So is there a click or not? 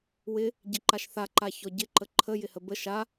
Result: yes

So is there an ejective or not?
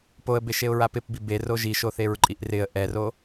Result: yes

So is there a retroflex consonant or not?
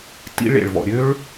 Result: yes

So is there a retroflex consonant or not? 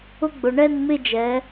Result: yes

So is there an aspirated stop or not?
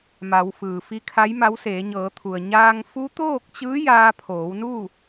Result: yes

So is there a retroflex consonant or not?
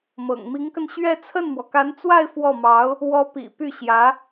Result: no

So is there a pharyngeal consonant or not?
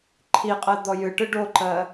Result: no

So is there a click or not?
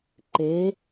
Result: yes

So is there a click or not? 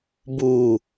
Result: no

